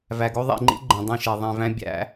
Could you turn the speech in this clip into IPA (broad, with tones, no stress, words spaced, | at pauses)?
væ˨ɡo˦ ðˤḭ˨ŋ͡ǃḭ˦ ɡ͡ǃẽ˨ dˤĩ˦˨ʃe˨ ðˤẽ˨væ̃˦ bʲæ̰˨˦